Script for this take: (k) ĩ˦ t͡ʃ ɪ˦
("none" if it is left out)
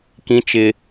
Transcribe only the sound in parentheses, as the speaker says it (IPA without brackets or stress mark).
k